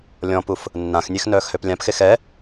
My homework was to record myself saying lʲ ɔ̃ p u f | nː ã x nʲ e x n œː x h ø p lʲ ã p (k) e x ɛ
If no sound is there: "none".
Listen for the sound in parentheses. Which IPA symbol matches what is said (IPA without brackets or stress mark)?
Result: x